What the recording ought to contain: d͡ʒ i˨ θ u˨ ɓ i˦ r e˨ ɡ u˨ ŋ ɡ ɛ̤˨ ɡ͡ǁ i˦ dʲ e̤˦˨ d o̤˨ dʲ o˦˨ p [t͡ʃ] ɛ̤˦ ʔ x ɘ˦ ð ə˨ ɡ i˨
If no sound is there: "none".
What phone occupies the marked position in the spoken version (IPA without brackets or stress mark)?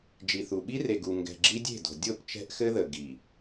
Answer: t͡ʃ